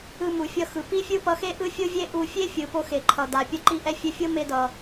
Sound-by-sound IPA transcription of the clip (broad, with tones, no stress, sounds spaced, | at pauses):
ɯ˧ m u˩ fʲ ʌ˧ x ɯ˩ p i˥ fʲ ɯ˥ p ʌ˧ x e˥ ʔ ɯ˥ fʲ o˥ vʲ e˥ ʔ u˧ fʲ e˥ fʲ ɯ˩ p o˧ x e˩ ǃʰ ʌ˩ d a˩ pʲ ʌ˧ ǃ i˧ ʔ ɛ˧ fʲ ɛ˧ fʲ o˥ m e˧ d ʌ˩